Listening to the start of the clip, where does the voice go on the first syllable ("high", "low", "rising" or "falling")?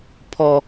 high